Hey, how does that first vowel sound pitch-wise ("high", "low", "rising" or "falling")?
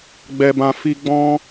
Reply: low